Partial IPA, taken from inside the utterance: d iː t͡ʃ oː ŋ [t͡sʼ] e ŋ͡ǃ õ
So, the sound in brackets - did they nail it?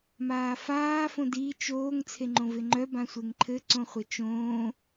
no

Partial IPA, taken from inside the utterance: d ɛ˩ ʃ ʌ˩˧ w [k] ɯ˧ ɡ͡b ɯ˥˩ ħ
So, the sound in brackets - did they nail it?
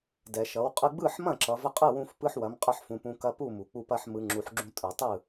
no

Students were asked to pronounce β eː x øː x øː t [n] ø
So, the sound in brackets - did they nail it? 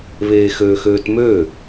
no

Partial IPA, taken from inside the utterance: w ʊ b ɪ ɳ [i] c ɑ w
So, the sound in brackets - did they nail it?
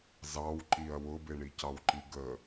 yes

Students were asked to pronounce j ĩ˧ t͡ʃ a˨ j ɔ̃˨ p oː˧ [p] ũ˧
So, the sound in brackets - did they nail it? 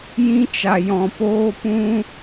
yes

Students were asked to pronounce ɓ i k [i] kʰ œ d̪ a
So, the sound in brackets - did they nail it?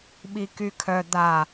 no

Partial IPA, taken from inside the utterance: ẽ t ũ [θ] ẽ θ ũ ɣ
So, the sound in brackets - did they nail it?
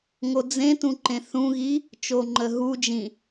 no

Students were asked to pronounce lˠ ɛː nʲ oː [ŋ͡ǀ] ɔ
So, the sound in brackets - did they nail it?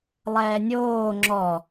no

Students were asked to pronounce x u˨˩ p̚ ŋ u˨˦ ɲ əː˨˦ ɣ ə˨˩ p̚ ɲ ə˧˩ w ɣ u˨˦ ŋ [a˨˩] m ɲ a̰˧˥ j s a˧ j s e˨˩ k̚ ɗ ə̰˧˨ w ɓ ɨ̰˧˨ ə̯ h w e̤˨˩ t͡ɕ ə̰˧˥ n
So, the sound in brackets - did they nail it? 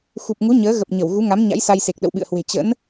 no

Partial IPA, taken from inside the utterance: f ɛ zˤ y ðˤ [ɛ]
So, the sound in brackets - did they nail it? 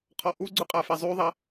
yes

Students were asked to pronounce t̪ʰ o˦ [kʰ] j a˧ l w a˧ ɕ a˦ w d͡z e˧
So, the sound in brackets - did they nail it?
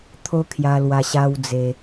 yes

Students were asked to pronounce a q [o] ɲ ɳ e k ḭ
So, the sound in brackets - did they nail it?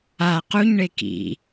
no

